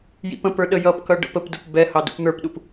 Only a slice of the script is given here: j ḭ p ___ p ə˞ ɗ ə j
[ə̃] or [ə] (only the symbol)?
ə̃